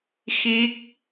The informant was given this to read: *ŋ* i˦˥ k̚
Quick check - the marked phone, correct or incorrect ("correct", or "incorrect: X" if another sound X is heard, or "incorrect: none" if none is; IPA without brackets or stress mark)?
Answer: incorrect: x